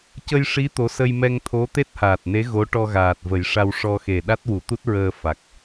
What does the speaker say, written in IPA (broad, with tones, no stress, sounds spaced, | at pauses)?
c ə˧ j ʂ i˧˥ t̪ o˧˥ s ə˧ j m ɛ˧ ŋ t̪ʰ o˧˥ t̪ e˦˥ t̚ h aː˨˩ t̚ n e˧˥ ɣ o˧˥ ʈ ɔ˧ ɣ aː˨˩ t̚ v ə˨˩˦ j ʂ a˧ w ʂ ɔ˧ x e˨˩ ɗ a˦˥ t̚ w u˨˩˦ t̪ u˦˥ t̚ ɹ əː˧ f a˨˩ k̚